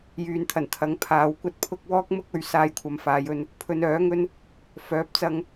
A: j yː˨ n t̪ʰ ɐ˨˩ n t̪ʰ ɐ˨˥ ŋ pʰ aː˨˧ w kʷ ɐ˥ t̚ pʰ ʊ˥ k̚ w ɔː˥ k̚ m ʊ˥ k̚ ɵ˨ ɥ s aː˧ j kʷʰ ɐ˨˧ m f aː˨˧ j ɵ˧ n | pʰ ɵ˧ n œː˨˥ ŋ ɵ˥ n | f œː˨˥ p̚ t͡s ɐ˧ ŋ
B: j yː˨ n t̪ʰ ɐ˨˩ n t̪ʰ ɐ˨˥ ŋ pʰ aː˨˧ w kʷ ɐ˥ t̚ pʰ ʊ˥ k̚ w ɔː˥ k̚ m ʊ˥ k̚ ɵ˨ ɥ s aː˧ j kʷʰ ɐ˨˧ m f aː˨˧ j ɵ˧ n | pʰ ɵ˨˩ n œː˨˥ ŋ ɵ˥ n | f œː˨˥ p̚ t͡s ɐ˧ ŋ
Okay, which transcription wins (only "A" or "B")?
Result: A